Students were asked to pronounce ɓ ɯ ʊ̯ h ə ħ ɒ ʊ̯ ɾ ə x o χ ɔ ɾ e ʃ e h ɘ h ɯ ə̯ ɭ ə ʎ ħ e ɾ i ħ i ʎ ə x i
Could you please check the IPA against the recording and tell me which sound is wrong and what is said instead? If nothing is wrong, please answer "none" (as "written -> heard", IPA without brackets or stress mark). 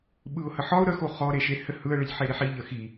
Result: none